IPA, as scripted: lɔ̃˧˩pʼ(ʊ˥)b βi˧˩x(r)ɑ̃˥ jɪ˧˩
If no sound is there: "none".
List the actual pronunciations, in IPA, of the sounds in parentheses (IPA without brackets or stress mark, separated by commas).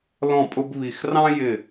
ʊ˧, r